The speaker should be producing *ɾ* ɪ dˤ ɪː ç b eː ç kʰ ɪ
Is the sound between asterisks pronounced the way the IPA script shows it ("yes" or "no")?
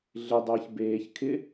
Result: no